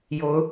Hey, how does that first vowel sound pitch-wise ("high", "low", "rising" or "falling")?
rising